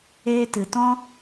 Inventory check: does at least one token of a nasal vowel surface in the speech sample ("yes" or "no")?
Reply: yes